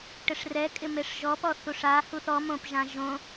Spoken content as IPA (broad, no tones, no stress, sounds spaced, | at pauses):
ʈ ɪ ʂ r ɛ kʼ ɪ m e ʂ ʒ ɔ p ɔ θ u ʂ a h u θ ɔ m õ p ʒ ã ʒ õ